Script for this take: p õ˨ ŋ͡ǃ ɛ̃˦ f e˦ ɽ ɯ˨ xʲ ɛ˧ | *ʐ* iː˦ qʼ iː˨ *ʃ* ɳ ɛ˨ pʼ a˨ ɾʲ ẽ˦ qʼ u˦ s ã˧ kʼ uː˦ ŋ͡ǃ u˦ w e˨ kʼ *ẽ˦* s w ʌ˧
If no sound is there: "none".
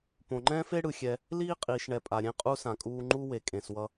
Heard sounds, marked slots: l, ʃ, ẽ˨

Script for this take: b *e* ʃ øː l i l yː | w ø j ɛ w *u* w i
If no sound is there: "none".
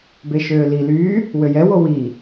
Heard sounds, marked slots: e, o

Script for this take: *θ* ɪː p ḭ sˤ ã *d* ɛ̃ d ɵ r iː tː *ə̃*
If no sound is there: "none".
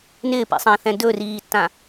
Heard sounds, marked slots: n, θ, ã

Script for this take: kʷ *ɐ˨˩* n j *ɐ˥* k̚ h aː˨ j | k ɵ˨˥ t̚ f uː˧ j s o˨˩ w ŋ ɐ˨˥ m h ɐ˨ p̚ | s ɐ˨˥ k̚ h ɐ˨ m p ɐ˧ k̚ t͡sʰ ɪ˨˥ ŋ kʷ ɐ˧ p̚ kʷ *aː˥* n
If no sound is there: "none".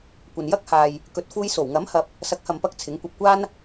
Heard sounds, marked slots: ɐ˨, ɐ˥, aː˥

